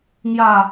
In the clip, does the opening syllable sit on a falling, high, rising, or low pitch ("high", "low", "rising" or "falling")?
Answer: falling